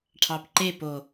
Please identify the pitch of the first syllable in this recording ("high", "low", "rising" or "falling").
low